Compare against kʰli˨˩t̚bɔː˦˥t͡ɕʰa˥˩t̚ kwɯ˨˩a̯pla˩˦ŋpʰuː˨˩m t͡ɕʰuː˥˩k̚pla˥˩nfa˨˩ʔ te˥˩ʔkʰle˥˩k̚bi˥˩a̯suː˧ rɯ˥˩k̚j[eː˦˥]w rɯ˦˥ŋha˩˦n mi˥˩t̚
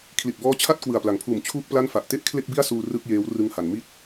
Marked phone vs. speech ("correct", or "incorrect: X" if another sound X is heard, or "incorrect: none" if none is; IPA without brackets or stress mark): correct